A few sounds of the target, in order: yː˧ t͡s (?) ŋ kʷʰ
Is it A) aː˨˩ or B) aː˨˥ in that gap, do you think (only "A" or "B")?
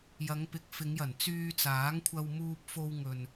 B